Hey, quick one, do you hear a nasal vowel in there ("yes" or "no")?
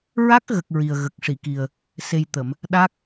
no